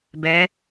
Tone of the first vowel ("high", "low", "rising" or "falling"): rising